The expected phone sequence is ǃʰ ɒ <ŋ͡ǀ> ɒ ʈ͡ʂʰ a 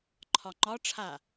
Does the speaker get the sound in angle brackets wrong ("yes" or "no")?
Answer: yes